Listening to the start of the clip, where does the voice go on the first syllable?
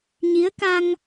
rising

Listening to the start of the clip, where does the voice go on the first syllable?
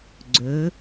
rising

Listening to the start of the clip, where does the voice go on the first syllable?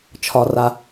low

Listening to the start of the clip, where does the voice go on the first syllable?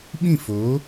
falling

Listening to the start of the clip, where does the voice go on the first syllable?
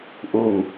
low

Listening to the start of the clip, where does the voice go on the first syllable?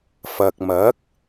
low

